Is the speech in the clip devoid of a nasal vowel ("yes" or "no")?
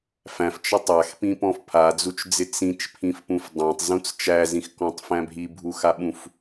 no